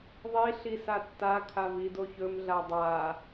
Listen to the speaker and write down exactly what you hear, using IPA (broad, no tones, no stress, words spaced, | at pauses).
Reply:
ðˤiɬi satːakʰa vidoçɵmɮa dˤa